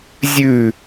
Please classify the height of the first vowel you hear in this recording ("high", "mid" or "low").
high